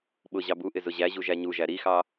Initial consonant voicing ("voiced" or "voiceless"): voiced